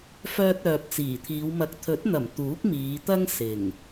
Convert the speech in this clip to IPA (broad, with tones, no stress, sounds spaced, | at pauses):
f œː˨ t̚ œː˨ p̚ t͡s iː˨˩ t̪ʰ iː˨˧ w m ɐ˨ k̚ t̪ʰ ɵ˨˥ t̚ n̪ ɐ˨˩ m t̪ uː˨˥ k̚ m iː˨˧ t̪ ɐ˥ ŋ s ɪ˨˩ ŋ